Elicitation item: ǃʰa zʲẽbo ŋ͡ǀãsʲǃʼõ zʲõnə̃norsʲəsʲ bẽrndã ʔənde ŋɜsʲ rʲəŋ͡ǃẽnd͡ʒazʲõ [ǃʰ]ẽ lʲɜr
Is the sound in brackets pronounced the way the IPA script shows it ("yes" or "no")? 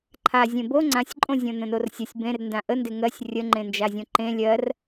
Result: no